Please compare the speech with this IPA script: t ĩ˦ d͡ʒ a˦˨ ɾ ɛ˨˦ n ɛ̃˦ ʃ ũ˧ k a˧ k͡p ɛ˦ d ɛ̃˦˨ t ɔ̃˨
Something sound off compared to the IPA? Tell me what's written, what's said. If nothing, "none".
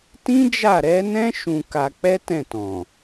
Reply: d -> t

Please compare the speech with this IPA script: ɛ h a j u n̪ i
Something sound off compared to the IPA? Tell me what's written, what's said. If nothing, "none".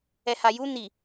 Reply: none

